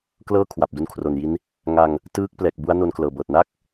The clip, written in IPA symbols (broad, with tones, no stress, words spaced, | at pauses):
klɤː˥˩ kʰwa˨˩p̚du˦˥nkʰro˨˩nji˦˥n | ŋa˧ŋ | tɯː˦˥k̚ plɛː˨˩k̚bu˦˥a̯ no˥˩nklɤː˨˩bɤː˨˩t̚ na˥˩k̚